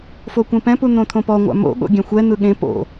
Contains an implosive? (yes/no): yes